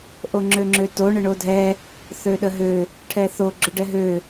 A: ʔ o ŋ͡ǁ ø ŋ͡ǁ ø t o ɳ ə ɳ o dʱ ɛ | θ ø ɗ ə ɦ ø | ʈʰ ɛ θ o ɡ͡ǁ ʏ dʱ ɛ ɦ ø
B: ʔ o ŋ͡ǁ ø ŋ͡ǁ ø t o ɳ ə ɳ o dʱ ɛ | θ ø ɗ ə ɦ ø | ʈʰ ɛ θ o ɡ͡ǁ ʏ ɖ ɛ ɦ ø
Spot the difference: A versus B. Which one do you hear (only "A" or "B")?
B